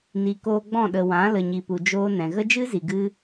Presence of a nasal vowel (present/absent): present